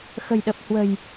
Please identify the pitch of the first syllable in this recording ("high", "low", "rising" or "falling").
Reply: low